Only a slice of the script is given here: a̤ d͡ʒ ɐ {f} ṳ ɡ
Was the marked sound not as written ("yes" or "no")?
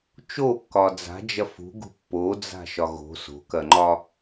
no